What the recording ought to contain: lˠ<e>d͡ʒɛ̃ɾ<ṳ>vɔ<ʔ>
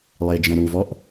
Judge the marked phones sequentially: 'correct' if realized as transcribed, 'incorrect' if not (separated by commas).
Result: correct, incorrect, correct